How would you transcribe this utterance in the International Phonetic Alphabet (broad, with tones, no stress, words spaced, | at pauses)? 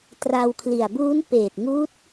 tra˧wkʰli˨˩a̯ buː˦˥npeː˨˩t̚ŋuː˦˥t̚